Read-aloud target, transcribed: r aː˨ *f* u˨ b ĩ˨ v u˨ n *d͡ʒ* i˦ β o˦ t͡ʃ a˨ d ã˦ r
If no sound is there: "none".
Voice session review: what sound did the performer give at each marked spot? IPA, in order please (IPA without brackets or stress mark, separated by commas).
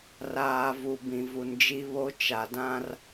v, d͡ʒ